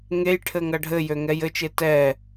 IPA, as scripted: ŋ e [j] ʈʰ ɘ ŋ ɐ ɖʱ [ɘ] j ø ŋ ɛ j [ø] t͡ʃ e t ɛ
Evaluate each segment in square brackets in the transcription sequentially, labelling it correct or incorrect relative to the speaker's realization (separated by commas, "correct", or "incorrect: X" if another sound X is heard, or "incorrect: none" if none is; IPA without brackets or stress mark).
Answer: correct, correct, incorrect: ɘ